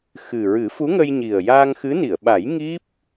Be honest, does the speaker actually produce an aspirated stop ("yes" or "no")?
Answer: no